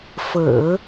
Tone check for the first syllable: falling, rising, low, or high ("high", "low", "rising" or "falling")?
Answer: low